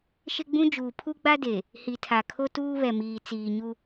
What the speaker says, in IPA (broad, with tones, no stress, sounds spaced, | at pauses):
ʃ ɪ˦ ɡ͡b ũ˦ d͡ʒ uː˨ pʰ u˦ ɡ͡b a˦ d e˨ | h i˨ tʰ a˨ kʰ o˦ t uː˦ β ɛ˨ m iː˨ t͡s iː˨ ɲ u˦